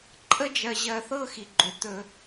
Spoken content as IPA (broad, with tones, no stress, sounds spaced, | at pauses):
ǃʼ ə˦ d͡ʒ ɜ˧ ʑ ɜ˧ θ ɤ˦ x i˨ ɡ͡ǃ ʏ˨˦ t̪ ɵ˧